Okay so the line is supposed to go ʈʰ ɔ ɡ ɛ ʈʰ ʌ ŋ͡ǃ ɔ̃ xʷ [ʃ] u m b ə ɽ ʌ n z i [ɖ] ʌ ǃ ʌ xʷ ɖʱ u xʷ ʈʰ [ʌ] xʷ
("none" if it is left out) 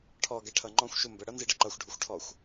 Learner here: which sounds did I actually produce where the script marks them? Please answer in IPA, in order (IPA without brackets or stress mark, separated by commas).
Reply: ʃ, ɖ, ɔ